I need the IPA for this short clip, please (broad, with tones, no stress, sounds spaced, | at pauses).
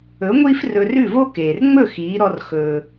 ɵ˩˥ ŋʷ iː˥ f r ɵ˧ r ʉ˥˩ v o˥ k eː˩ r ŋ͡m ɵ˥˩ x iː˩˥ ɾ ɔ˧ r x ɵː˩